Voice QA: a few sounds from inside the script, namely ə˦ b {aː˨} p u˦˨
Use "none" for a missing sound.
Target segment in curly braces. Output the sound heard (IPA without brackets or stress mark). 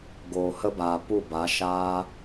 aː˨